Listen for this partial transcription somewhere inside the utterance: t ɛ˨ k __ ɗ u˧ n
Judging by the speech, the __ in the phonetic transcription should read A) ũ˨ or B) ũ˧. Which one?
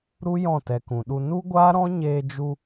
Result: A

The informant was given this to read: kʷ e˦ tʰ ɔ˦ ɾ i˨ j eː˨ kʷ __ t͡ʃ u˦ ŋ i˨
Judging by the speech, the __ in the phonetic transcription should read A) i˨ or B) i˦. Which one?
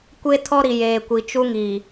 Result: A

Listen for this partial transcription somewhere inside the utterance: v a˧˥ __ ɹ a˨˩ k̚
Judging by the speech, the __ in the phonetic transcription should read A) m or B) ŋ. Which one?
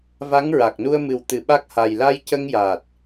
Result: B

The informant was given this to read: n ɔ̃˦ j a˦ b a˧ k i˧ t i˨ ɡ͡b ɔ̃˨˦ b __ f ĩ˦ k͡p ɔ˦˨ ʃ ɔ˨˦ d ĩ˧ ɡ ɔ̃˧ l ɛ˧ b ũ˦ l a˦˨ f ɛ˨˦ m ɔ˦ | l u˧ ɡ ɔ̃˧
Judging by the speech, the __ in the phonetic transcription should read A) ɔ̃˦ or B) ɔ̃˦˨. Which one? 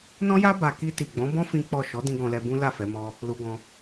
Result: A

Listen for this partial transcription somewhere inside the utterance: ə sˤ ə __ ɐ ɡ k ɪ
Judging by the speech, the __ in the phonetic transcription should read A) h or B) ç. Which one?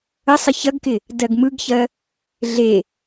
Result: B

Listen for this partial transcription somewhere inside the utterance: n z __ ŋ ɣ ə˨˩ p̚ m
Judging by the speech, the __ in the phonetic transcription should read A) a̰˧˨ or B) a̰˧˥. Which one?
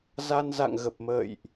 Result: A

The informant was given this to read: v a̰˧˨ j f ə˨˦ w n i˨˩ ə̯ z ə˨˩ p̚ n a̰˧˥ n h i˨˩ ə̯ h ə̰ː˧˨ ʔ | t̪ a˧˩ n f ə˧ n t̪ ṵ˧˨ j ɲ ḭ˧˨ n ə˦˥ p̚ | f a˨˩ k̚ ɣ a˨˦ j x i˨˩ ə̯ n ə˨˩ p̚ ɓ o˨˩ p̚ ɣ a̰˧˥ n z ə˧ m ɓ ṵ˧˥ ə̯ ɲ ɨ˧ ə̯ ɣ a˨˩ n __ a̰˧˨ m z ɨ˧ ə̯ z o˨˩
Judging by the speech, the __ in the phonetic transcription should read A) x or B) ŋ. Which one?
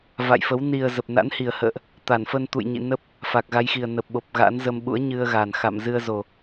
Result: A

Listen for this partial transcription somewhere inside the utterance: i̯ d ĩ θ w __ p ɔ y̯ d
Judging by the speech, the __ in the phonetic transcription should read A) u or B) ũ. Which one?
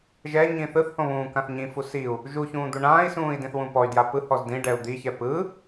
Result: B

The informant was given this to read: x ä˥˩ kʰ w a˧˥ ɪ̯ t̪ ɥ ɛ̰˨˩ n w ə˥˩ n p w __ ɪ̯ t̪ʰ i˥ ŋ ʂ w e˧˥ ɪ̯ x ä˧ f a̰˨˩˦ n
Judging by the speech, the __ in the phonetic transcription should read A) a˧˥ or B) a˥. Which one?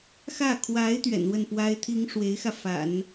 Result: B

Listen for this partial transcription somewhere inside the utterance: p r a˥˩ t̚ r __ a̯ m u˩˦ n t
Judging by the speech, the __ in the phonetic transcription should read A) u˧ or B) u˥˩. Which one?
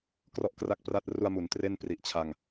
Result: A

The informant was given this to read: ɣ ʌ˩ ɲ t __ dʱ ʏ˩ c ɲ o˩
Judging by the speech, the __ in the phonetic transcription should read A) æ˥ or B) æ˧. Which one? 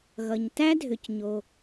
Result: A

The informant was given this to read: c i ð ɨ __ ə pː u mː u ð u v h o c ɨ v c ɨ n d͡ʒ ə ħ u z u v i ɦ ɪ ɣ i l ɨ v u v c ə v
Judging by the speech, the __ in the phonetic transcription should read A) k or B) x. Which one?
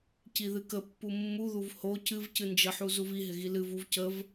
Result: A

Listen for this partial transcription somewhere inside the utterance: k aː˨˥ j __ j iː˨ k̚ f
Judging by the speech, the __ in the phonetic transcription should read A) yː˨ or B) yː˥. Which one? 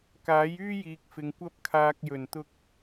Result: B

